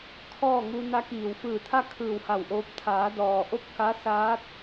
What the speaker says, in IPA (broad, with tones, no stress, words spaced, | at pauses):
kʰɔː˥˨ŋu˧ na˧kiː˩wfɯː˧˩t̪ʰa˥˨ kʰɯː˧˩wha˧˩wʔoː˧p̚ t̪ʰaː˩˧dɔː˩ʔo˥˨p̚ ka˧˥ saː˧˥t̚